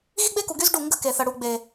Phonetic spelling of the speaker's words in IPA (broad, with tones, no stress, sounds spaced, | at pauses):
ɣ i˦ ɡ͡b e˦ k u˨ ɡ y˦ z ɖ u˦˨ ŋ ɡ ə̤˦ k e˨ θ ə˨ ɽ u˨ ɡ͡b e˨